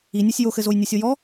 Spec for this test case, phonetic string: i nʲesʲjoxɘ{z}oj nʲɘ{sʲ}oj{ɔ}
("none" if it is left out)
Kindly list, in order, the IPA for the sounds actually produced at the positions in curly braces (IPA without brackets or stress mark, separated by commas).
z, sʲ, ɔ